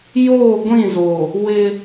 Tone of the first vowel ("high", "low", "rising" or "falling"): falling